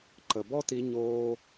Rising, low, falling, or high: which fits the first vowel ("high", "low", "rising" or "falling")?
low